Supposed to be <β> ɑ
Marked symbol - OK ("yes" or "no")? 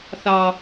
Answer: no